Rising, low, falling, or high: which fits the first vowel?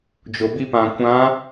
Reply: low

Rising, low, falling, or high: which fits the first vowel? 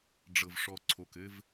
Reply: low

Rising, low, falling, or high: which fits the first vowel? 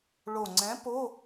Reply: low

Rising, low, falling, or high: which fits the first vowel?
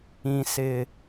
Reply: low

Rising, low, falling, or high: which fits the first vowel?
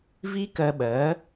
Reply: high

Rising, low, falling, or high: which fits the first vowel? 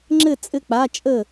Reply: falling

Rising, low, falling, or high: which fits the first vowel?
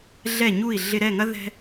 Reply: falling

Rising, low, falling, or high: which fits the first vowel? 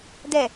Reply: low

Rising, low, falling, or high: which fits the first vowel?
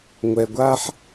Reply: low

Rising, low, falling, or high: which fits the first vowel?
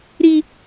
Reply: high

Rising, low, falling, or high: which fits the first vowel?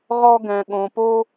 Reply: high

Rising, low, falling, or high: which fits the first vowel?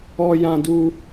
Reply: high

